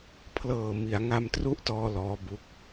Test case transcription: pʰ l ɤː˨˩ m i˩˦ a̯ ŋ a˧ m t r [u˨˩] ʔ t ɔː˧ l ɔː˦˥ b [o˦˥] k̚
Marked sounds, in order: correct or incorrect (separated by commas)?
incorrect, incorrect